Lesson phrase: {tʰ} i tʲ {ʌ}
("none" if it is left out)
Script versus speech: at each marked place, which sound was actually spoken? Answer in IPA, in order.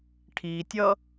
ʈʰ, ʌ

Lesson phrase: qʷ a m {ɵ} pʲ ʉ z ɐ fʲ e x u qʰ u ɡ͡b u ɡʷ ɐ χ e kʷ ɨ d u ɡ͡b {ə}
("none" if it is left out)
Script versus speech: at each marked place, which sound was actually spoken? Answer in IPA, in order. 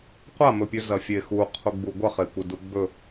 ɵ, ɵ

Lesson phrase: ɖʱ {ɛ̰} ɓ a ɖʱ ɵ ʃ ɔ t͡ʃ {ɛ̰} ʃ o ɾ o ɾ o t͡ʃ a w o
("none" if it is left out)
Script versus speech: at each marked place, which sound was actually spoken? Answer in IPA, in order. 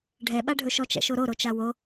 ɛ, ɛ̰

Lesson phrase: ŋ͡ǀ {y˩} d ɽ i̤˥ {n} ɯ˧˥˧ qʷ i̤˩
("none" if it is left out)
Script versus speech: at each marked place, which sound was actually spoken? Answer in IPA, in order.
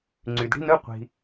y˩, n

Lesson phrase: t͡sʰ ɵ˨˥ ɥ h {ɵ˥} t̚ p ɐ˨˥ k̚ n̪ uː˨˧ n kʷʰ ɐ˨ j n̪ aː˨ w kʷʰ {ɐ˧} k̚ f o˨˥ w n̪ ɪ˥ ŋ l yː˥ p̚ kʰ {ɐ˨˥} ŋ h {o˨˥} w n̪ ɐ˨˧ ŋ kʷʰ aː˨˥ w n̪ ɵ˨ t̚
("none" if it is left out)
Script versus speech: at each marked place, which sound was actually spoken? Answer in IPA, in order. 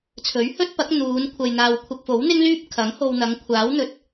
ɵ˥, ɐ˧, ɐ˨˥, o˧

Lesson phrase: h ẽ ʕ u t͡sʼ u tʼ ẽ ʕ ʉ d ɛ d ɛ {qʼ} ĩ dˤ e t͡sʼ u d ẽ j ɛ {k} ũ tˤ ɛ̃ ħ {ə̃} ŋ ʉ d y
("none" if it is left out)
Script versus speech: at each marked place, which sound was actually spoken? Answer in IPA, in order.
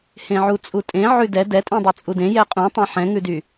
tʼ, qʼ, ɛ̃

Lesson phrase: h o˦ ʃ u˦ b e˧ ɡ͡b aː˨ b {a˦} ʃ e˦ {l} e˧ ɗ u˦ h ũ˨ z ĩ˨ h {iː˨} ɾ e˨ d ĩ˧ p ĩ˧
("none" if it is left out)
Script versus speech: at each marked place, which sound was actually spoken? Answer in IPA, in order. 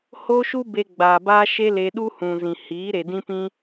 aː˦, l, iː˨˦

